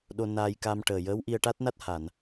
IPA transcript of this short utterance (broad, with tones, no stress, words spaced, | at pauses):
ɗo˧naː˧jka˧mʈəː˨˩ jəː˧˥wʔi˧ə̯ʈa˦˥t̚na˦˥t̚ ha˨˩˨n